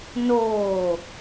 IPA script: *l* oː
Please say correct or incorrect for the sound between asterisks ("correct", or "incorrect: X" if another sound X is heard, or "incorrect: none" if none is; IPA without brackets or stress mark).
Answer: incorrect: n